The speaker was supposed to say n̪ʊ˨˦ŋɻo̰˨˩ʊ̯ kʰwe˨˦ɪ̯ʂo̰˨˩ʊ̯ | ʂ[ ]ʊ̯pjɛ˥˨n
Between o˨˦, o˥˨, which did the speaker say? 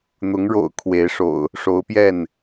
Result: o˨˦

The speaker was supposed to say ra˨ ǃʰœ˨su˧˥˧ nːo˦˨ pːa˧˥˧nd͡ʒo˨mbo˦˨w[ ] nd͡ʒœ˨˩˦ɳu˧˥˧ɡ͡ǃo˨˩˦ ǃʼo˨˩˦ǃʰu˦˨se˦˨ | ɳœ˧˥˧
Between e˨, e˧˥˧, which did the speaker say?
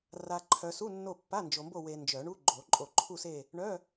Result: e˨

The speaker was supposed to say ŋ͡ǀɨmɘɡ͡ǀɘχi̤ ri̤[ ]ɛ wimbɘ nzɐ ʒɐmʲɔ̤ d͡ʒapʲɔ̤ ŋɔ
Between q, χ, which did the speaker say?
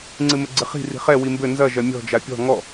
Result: χ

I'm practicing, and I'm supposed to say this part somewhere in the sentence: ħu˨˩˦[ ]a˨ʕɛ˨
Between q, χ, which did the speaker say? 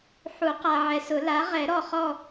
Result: q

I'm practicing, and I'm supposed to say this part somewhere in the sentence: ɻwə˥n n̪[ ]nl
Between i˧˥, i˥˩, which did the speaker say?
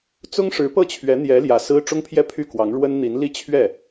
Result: i˧˥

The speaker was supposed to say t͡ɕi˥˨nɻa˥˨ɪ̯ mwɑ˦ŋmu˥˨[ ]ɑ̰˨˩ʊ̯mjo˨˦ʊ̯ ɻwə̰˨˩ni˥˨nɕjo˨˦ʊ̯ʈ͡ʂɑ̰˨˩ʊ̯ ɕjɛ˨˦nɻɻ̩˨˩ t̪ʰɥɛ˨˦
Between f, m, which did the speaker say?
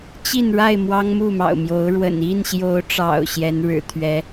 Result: m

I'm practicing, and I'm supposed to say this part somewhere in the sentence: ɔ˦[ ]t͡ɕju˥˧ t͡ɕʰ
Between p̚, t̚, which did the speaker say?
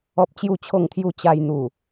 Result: p̚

